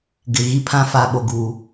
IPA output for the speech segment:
ɡɪ˨ ɣi˦pʰã˦ fa˨ɓo˨ɡuː˨

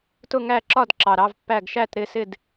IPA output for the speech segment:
tʊ˥˨ŋæ˥˨ǁɒ˥˨dǁɑ˨˩ ɾɑ˧˥˧vpːæ˥˨ɡ ʃæ˥˨tɾɪ˥˨sɪ˥˨d

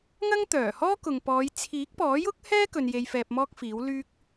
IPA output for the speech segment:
ŋɐ˥ŋt̪œː˨˩hɔː˥ kʊ˨ŋpɔː˨˧j t͡sʰiː˨˥k̚pɔː˨˥jʊ˥k̚hɛː˥ kɵ˧nje˧j fɛː˧p̚mɔː˥k̚fiː˨˥wlyː˥k̚

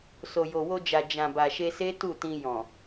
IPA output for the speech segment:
so˨jo˨wo˧d͡ʒa˨ d͡ʒã˨ba˨ʃe˧se˦ tu˦˨tĩ˧ jɔ̃˨

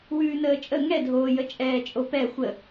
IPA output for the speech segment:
wʉːnəːt͡ʃʼə ŋɛdʱoːjə t͡ʃʼɛːt͡ʃʼopɛ xʷə

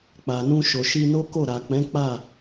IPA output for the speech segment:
k͡pa˨nũ˧ʃo˨ʃi˧ no˦ko˦˨ ɾa˨k͡pɛ̃˨˦ k͡pa˦˨

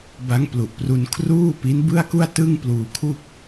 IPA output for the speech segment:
ba˦˥ŋplu˨˩ʔpru˧n kʰruː˥˩pi˦˥n bɯ˥˩a̯ku˥˩a̯tɯ˥˩ŋ pluː˧ kʰu˥˩k̚

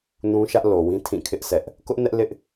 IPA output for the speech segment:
nũ˦ʃä˦ʔ lo˨wĩ˦ tʰĩ˦˨kʰɪ˦ʔsʰɛ˦ʔ | kʊ˦ʔnɛ˦ʔlɪ˦ʔ

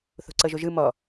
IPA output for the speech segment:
θo̤ǀɤʒoʒɯ mɔ

